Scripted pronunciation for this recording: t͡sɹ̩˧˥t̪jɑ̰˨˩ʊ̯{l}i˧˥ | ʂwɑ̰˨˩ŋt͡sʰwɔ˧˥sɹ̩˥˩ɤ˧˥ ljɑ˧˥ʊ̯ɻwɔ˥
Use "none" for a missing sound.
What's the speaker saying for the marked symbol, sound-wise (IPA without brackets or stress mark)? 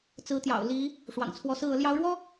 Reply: l